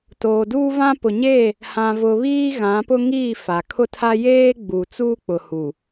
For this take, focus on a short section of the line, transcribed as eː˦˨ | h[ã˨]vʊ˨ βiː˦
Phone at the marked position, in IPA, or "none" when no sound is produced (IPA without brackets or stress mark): ã˨